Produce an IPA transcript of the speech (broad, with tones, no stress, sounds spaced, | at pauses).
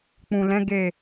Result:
k͡p ũ˨ l ɛ̃˨˦ ɡ e˦˨